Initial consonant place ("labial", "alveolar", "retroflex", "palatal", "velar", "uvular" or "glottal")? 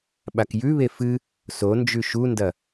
labial